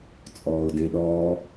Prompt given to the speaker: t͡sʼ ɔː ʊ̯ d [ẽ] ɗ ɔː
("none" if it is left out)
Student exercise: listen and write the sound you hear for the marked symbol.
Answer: ẽ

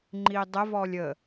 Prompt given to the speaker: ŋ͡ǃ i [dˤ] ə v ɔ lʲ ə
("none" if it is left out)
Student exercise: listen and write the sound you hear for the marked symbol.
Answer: dˤ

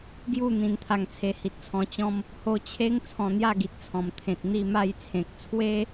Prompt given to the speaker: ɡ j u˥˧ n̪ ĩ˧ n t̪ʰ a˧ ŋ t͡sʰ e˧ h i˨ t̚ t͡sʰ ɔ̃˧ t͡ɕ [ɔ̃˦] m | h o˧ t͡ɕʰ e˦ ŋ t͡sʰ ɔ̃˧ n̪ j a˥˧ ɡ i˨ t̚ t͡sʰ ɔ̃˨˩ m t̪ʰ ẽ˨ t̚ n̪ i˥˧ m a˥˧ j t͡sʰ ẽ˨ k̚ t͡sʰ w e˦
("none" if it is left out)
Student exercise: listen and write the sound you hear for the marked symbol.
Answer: ɔ̃˦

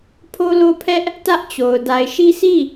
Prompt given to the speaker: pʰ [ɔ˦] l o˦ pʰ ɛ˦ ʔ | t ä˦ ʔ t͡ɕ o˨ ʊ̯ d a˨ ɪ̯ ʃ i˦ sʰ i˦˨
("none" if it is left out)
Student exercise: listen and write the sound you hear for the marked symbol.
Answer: o˦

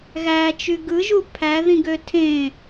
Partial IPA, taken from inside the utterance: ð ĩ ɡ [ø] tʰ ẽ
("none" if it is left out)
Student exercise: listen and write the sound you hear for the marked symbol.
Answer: ø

